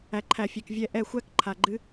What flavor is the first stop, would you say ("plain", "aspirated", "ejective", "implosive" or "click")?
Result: click